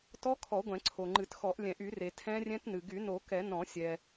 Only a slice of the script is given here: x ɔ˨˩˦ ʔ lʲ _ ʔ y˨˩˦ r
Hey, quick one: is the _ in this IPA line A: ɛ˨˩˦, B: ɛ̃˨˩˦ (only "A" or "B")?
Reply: B